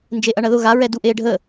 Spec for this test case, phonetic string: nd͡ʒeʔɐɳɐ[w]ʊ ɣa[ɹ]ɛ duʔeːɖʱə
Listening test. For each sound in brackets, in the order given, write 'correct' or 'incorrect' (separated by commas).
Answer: incorrect, correct